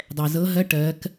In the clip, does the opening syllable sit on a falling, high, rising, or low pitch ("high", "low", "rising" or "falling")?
low